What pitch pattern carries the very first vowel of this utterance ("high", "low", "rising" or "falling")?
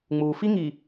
low